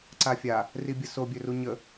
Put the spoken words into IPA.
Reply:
ǀ a fʲ a | r i bʲ ə s o bʲ ø r u ɲ ə

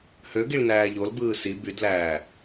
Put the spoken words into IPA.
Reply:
h ø ɡ i ɭ n æː ʎ o l b ɯː s i b y d l æː

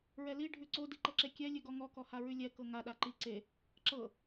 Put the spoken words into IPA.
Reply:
ɹ ɛ l i ɖʱ ʉ ǀ o d i ǃ ɤ ǁ e kʲ ɛ lʲ ʉ ɡ ɔ ŋ ɔ k ɔ h a ɹ ʉ lʲ ɛ k ɤ ŋ a ɗ a ǃ i ǀ e | ǁ ɤ

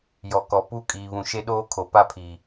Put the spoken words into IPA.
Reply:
j ɔ˨ k ɔ˨ p u˦˨ kʼ iː˨ β ũ˨ ʃ e˦ ɗ oː˦ kʰ o˨ p a˦ pʰ iː˨

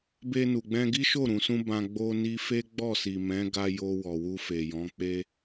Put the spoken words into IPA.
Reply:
b e˧ n u˨ ɡ͡b ɛ̃˧ ɡ i˦ ʃ o˦˨ ɾ ũ˨ s ũ˧ b ã˧ ɡ͡b o˧ n i˧ f e˦ ɡ͡b ɔ˦˨ s i˨ m ɛ̃˨˦ ɡ a˧ j o˧ w ɔ˨ w u˧ f e˨ j ɔ̃˨˦ k͡p e˧

